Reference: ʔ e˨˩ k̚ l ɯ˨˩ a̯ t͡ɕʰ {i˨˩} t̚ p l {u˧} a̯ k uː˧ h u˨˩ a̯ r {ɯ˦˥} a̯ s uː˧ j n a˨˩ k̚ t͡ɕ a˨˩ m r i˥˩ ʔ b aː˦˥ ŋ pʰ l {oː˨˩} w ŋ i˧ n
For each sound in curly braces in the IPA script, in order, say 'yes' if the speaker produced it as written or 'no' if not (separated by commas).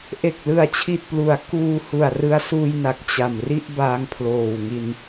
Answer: yes, no, no, yes